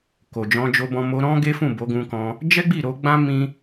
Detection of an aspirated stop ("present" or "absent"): absent